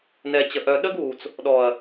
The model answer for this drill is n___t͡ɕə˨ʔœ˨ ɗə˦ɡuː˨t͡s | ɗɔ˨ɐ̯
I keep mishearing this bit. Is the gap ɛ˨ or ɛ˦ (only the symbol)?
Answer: ɛ˨